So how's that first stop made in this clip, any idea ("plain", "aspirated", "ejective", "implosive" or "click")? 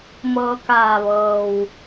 plain